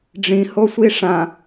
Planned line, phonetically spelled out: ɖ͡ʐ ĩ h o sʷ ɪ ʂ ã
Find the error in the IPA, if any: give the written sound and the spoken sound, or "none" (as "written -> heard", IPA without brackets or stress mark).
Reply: ɪ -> i